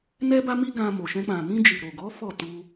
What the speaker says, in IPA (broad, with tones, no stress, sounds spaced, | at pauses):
n ɛ˦ b a˦ m i˦ ɡ ã˧ m o˨ ʃ ɛ̃˧ k͡p ã˨ m ĩ˧ d͡ʒ i˨ ɾ o˨ ɡ ɔ˨˦ f ɔ˦˨ t u˧